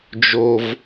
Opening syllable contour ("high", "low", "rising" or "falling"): low